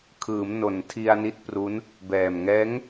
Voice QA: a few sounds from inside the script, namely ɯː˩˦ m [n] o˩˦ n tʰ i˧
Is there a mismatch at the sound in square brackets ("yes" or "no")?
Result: no